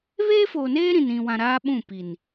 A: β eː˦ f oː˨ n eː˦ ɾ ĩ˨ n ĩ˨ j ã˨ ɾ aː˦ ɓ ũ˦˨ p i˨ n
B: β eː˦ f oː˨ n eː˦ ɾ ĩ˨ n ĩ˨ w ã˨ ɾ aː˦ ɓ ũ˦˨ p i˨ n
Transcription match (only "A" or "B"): B